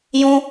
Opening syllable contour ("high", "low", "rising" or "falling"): high